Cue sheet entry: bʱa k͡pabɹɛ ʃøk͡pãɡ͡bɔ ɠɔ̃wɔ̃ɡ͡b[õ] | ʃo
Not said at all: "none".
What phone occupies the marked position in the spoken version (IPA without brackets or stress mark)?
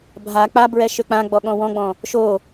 ɔ̃